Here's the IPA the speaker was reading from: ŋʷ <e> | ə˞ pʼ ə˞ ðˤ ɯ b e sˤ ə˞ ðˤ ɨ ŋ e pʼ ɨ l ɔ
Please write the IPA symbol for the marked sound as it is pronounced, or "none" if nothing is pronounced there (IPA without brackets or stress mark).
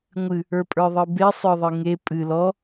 ɨ